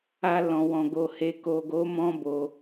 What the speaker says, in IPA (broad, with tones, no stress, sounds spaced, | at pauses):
a˧ l ɔ̃˨ w ɔ̃˨ ɡ o˨ h e˨ k o˨ ɡ o˨˦ m ɔ̃˦ b o˧